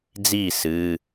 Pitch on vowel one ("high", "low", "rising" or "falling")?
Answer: falling